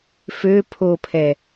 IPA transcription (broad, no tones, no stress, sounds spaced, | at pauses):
f ø pʰ o pʰ ɛ